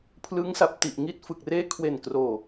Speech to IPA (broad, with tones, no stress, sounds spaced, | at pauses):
pʰ l ɯ˦˥ ŋ s a˨˩ p̚ t i˨˩ ʔ ŋ i˦˥ t̚ f ɯ˨˩ k̚ r eː˥˩ kʰ w e˨˩ n k r oː˨˩